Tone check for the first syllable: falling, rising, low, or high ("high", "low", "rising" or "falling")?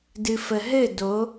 low